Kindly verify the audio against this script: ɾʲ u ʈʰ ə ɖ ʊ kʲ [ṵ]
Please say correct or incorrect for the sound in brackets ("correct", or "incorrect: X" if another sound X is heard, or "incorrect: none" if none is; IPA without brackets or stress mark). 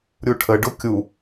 incorrect: u